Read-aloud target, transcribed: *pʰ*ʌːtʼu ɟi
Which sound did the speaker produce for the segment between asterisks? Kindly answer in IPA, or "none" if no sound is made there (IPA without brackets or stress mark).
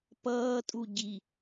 p